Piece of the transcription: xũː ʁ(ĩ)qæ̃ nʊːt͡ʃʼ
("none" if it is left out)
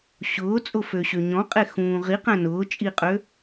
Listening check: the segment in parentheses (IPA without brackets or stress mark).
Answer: i